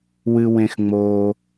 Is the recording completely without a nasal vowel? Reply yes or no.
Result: no